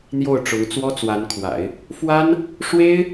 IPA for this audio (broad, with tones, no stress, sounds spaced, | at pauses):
n̪ j o˥˩ ʊ̯ ʈ͡ʂ ʊ˧˥ ŋ t͡s w ɔ˥ t͡s w a˧˥ n kʰ w a̰˨˩˦ ɪ̯ | f w a˥ n | ʂ w e˥ ɪ̯